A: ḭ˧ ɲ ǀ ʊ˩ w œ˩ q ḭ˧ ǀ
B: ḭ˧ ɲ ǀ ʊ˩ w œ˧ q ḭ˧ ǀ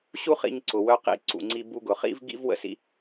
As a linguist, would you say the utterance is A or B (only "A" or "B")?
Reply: B